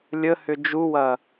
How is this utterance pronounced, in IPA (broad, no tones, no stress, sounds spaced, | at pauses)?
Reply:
lʲ ə h ʏ d͡ʒ u w ɐ